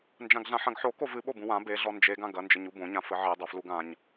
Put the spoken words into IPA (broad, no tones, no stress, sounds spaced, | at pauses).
n d͡ʒ ã ɡ ɮ ã ħ ɐ̃ ɡ ħ o k o v ɨ ɓ o b ũ w ã b e ɮ ɔ n d͡ʒ e ɡ ã ɡ ɐ n d͡ʒ ɘ ɲ u b õ ɲ ã f ɘ ʕ e dˤ o f l u ɡ ã ɲ